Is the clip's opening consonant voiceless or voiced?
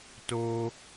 voiceless